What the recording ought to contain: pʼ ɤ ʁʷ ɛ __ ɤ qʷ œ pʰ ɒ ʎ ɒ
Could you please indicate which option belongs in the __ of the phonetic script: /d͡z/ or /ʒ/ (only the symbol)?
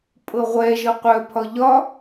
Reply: ʒ